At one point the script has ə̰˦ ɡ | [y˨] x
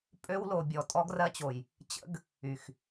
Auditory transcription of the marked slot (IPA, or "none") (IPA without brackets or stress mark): y˨